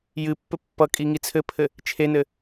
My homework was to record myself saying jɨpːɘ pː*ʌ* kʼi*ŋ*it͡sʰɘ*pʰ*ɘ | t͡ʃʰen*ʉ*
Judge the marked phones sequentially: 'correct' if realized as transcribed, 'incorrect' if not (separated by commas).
correct, correct, correct, incorrect